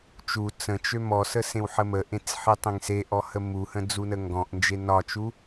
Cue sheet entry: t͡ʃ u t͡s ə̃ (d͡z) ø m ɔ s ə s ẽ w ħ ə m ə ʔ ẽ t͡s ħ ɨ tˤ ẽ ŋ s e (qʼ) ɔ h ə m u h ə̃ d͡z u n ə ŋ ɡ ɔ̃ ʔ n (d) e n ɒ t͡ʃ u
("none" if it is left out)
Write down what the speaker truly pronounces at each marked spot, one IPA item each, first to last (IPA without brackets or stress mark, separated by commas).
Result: t͡ʃ, ʔ, d͡ʒ